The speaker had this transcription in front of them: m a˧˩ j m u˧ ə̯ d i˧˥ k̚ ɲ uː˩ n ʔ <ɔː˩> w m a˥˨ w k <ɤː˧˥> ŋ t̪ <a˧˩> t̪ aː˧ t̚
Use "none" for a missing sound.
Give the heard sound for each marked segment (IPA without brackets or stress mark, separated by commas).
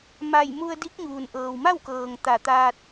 ɤː˩, ɤː˩, a˧˩